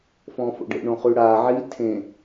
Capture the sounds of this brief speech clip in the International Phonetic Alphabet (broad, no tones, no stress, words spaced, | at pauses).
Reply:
fɔ̃ːfo̰ɖḛ ɳõχʉɽa ʕi tʰẽ